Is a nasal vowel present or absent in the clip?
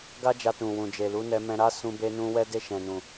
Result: present